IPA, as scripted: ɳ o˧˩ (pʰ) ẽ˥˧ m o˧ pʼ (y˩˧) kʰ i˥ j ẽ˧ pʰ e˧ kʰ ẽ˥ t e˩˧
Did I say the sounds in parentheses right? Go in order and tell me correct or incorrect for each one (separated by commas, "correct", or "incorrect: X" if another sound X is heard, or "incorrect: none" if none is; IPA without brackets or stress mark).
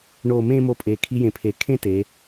incorrect: m, incorrect: e˩˧